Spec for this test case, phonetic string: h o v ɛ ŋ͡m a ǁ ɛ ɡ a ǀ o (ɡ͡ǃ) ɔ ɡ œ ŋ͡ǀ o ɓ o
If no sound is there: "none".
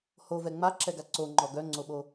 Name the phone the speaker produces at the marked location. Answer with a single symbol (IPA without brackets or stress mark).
ŋ͡ǃ